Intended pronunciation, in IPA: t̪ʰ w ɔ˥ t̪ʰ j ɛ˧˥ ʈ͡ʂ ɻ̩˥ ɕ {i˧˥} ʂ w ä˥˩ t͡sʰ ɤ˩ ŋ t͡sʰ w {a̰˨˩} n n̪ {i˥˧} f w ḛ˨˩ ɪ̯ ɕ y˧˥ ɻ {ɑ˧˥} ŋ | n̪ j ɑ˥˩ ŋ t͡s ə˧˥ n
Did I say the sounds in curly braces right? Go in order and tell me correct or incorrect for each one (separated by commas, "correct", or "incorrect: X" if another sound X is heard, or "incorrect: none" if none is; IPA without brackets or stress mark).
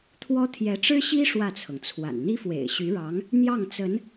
incorrect: i˥, correct, incorrect: i˥, correct